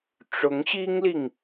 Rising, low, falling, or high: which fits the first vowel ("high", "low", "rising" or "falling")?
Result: rising